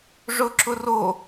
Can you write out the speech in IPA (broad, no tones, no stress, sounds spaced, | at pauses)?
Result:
ʐ ʊ ǁ ʊ r o